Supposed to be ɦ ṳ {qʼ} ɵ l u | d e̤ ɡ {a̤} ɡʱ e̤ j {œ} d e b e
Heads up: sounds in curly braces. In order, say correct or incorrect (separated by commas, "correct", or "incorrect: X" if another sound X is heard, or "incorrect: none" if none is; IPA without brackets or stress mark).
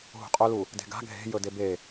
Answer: correct, correct, incorrect: ɵ